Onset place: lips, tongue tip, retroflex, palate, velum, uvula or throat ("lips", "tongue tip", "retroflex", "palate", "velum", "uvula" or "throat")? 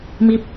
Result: lips